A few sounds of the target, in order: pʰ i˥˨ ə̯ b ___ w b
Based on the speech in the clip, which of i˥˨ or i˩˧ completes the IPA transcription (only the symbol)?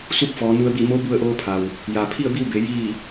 i˥˨